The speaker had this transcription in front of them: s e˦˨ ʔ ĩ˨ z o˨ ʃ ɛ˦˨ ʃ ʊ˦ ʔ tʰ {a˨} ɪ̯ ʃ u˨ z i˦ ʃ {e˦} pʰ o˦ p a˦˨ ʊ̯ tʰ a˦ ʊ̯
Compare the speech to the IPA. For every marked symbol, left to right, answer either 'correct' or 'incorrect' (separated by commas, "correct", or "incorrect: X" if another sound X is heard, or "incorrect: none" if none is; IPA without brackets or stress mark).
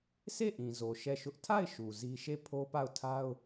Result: incorrect: a˦˨, incorrect: e˦˨